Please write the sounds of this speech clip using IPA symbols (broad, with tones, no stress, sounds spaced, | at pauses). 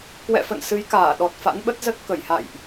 k w ɛ̰˧˨ f ə̰˧˨ n s ɨ˨˦ j k aː˧˩ ɗ ɔ˨˩ t̚ f a̰˧˥ n ɓ ə˦˥ t̚ z ə˦˥ t̚ k ə˧˩ j h a̰˧˨ j ʔ